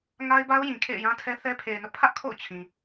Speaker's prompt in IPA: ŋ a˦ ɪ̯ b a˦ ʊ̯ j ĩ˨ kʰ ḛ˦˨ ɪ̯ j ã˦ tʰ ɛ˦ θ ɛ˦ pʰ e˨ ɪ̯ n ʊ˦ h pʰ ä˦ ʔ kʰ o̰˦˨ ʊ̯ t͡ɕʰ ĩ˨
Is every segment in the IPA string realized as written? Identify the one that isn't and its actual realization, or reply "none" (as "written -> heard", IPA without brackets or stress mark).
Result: h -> ʔ